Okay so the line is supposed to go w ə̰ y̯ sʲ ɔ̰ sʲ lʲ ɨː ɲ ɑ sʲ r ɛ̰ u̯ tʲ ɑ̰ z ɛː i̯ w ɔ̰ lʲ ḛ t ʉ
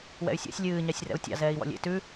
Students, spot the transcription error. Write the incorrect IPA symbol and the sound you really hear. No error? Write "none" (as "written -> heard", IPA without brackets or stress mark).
ə̰ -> ɛ̰